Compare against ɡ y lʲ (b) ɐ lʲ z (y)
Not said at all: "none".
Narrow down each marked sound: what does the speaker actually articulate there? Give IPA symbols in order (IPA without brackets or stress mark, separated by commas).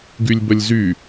b, y